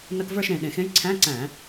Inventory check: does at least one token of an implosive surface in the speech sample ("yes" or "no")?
yes